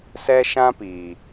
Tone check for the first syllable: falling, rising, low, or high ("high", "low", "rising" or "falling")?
high